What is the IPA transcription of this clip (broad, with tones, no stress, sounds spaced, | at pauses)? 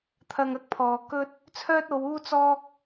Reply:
t̪ʰ ɐ˧ ŋ ɐ˥ k̚ pʰ ɔː˨ k ɵ˥ t̚ | t͡sʰ œː˥ t̚ o˨˧ w uː˥ t͡s ɔː˥ k̚